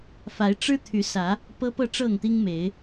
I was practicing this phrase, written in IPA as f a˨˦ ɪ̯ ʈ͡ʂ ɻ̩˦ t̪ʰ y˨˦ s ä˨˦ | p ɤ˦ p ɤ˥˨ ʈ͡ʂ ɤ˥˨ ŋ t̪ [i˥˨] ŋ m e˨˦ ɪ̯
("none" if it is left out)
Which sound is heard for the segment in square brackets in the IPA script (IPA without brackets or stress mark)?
i˦